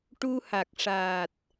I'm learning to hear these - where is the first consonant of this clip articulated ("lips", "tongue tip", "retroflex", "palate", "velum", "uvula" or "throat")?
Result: retroflex